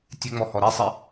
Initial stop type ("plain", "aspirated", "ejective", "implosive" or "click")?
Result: plain